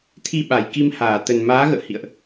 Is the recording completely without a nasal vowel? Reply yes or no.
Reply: yes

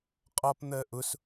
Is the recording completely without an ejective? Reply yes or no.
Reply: no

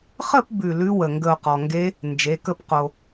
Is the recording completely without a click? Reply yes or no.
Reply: yes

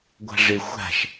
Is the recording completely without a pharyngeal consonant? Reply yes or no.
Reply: yes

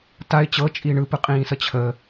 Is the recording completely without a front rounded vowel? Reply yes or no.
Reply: yes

